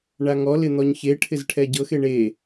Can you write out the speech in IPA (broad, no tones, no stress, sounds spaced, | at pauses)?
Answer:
ɳ a ŋ ɔ l ɪ n̪ ɔ ɲ ç e ʈʰ ɪ z ʈʰ ɛ ɟ ɤ x e ɳ e